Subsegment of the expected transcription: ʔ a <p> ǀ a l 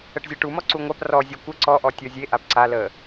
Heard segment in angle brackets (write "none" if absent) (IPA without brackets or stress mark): p